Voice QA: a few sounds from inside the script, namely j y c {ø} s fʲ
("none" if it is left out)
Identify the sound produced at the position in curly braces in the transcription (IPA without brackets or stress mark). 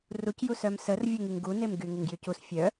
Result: u